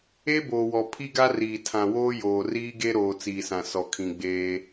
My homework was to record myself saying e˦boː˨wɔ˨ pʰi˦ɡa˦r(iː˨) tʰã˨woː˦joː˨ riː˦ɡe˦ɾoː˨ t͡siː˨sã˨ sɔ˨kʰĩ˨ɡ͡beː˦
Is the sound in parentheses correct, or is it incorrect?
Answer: correct